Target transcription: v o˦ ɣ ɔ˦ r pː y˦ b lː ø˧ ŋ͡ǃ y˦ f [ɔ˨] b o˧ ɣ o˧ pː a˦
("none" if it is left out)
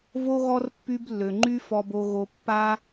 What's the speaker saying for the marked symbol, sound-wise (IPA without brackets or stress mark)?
ɔ˧